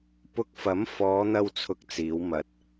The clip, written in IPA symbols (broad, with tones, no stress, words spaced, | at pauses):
pʊ˧k̚fɐ˨˥mfɔː˨˧n̪ɐ˧w t͡sʰʊ˥k̚t͡siː˨˥w mɐ˨t̚